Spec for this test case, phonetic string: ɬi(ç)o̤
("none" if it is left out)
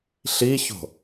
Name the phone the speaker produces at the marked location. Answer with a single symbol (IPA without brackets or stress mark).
ç